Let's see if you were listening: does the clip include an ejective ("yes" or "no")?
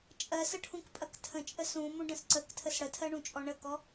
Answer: yes